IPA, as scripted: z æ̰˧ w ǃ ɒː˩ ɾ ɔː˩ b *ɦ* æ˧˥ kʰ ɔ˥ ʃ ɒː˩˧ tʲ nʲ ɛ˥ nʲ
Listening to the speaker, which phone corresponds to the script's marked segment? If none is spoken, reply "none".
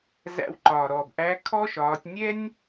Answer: ʔ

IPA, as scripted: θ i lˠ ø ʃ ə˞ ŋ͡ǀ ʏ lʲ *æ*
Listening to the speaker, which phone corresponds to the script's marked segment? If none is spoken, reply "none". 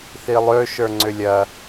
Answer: ɐ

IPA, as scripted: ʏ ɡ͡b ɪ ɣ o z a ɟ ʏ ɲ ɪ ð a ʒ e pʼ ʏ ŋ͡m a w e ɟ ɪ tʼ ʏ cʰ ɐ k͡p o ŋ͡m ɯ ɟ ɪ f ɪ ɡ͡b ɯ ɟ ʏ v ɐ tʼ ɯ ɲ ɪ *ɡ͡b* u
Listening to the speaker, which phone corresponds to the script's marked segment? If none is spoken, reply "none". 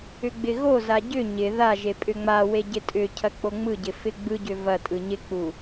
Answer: k͡p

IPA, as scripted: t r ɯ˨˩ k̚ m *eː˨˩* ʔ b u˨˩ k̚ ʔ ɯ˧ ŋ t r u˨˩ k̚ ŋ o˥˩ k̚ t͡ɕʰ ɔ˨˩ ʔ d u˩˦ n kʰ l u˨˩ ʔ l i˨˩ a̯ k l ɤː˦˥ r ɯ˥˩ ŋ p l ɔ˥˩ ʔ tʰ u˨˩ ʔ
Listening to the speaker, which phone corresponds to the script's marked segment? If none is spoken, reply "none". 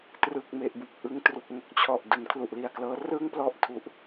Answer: e˨˩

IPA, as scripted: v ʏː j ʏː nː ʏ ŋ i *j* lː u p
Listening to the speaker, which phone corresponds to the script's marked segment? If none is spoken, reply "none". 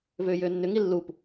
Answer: none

